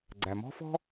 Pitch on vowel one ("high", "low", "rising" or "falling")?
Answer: low